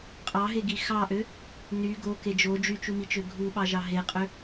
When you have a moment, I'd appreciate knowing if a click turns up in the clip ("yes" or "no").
no